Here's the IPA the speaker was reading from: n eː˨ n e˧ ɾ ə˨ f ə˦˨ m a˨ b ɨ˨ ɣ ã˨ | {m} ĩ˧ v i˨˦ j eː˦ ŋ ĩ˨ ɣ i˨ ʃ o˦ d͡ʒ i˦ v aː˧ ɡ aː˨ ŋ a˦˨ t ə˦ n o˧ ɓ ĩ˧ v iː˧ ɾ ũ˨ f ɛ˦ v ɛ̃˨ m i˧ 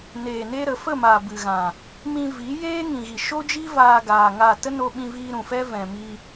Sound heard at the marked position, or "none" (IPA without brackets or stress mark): m